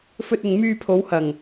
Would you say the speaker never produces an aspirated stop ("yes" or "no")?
no